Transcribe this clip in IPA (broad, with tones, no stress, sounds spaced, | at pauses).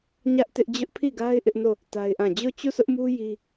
ɲ ä˦ ʔ t ɪ˦ ʔ d͡ʑ ʊ˦ ʔ pʰ i˦˨ ɡ a˦ ɪ̯ ʔ ɪ˦ ʔ n o˦˨ | t a˦ ɪ̯ ʔ ã˦˨ d͡ʑ o˦˨ t͡ɕ u˦˨ s ʊ˦ ʔ m u˦ j i˦